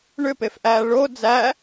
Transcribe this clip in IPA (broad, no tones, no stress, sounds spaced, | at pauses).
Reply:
ɳ ʏ p e f ʔ æː ɭ o d͡z æ